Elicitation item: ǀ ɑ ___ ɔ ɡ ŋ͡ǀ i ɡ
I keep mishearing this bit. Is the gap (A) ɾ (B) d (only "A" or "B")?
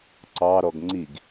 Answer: A